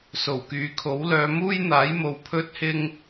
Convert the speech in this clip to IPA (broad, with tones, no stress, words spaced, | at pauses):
so˨˩wkyː˨kʰo˨˥wlœː˨˧ muː˥jn̪aː˨˥jmo˨w pʰɵ˥t̚hɪ˥ŋ